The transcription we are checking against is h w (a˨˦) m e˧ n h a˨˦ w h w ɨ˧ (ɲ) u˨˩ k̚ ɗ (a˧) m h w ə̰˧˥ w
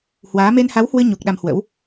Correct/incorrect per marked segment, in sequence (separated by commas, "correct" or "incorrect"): incorrect, correct, correct